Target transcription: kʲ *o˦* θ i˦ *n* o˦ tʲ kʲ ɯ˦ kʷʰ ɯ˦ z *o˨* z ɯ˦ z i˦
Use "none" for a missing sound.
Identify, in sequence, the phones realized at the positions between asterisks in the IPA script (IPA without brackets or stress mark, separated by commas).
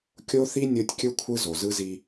o˦, nʲ, o˨